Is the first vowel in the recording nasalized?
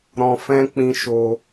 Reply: yes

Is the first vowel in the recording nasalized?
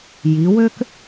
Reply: no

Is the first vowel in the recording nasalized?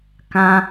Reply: yes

